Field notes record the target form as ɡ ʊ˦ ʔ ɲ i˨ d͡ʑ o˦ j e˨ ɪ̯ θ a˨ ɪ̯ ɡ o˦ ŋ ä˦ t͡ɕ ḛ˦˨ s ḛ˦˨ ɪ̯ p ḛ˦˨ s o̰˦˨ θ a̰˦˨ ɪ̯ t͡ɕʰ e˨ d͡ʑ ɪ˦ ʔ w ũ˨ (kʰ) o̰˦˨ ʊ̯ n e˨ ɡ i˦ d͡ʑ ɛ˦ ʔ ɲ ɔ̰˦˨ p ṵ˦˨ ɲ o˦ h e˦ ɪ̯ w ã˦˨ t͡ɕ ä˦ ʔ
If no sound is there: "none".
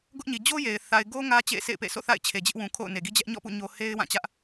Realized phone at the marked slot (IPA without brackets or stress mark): kʰ